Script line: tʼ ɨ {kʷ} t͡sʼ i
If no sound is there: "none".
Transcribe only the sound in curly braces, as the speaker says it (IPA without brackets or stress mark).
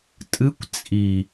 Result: kʷ